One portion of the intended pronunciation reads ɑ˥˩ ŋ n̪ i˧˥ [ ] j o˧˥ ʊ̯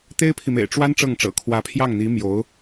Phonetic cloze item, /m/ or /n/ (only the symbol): m